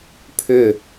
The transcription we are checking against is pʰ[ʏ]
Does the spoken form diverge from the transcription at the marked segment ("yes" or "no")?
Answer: no